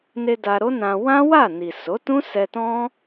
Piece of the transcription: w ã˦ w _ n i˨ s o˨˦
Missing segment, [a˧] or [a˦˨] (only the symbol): a˦˨